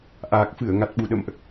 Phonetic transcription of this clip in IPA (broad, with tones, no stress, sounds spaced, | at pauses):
ʔ aː˨˩ k̚ f ɨ˧˩ ə̯ ŋ a˨˩ t̚ ɓ u˨˩ ɗ ə̰˧˨ m ʔ